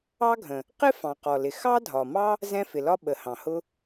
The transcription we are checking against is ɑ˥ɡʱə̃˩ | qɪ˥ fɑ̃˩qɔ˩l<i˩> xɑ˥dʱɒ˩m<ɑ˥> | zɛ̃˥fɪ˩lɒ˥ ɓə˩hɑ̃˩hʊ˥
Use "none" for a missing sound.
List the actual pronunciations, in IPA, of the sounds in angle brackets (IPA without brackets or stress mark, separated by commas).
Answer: ɪ˩, ɑ˥